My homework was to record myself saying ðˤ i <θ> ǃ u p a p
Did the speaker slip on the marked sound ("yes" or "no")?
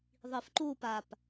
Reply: yes